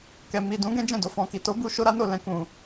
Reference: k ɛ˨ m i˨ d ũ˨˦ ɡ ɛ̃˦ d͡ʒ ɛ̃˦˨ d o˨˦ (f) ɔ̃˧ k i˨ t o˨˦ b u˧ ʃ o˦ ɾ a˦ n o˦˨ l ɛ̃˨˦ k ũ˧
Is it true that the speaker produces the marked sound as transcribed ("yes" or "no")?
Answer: yes